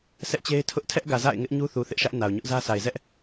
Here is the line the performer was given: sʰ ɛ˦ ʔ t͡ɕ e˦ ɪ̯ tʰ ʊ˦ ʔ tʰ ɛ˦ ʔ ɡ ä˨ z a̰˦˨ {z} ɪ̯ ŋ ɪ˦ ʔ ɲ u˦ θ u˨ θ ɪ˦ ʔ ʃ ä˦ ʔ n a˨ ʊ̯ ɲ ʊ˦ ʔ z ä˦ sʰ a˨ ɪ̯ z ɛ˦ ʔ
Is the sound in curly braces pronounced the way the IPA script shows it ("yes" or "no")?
no